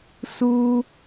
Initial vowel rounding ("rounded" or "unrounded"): rounded